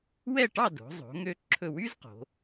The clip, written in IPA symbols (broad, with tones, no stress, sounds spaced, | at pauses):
w ɛ˥˧ ʈ ɑ˥˧ d o̤˩˧ zˤ o̤˩˧ ŋ ø˧ ǁʰ ɵ˧˩ w y˥ z q o̤˩˧